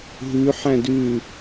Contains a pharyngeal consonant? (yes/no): yes